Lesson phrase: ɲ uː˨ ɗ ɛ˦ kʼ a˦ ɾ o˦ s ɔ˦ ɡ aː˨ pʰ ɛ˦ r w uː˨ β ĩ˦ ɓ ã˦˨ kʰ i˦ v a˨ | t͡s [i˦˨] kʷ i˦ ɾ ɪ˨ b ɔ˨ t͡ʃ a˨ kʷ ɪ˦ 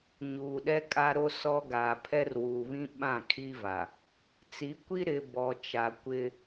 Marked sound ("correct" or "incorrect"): incorrect